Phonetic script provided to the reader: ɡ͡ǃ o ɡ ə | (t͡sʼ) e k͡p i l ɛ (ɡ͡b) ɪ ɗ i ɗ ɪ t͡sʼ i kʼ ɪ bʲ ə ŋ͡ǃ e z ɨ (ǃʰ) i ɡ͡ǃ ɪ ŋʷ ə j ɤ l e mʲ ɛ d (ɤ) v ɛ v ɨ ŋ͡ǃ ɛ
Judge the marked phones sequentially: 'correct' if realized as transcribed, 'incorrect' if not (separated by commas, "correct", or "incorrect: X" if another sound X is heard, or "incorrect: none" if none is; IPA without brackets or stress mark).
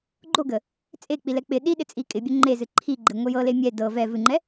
correct, incorrect: k͡p, correct, correct